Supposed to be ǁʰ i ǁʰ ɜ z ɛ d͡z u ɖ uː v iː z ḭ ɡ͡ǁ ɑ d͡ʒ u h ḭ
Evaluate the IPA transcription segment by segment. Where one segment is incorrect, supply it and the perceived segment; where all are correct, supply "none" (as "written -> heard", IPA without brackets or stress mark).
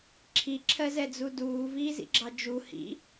ɖ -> d